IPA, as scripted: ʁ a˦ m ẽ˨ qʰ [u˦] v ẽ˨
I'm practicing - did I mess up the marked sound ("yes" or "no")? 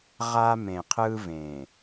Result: yes